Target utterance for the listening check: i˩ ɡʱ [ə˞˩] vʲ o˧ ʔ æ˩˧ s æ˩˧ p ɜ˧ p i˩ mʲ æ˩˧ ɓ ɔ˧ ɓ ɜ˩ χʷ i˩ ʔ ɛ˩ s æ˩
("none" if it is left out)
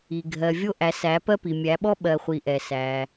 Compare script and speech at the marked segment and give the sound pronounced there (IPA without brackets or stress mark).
ɜ˩